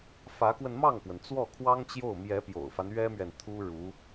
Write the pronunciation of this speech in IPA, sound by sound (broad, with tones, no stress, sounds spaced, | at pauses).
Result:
f ä˧˥ k w ə˧ n m ɑ˥˩ ŋ k w ə˩ n t͡s w ɔ˥˩ kʰ w ɑ˥ ŋ t͡ɕ j o˥˩ ʊ̯ m j ɛ˧˥ p j o̰˨˩ ʊ̯ f a˦ n ɥ ɛ˥ m ɥ ɛ˨ n t̪ʰ u˥ ɻ u˧˥